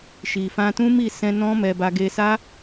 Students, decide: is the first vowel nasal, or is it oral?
oral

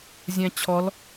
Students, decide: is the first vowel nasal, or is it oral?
nasal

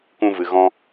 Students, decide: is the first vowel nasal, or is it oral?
nasal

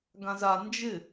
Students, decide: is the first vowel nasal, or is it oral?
nasal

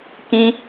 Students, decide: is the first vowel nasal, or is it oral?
nasal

